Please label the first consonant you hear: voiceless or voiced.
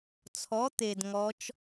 voiceless